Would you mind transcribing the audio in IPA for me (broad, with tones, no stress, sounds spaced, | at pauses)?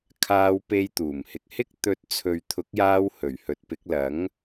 kʰ aː˧ w p e˧ j t̪ uː˨˩ m h ɪ˨ k̚ h ɪ˥ k̚ t̪ ɵ˧ t̚ t͡sʰ ɵ˨ ɥ t̪ʰ ʊ˨˥ k̚ j aː˧ w h ɵ˨˩ ɥ h ɵ˨˥ t̚ p ɪ˨˥ k̚ l ɐ˨˥ ŋ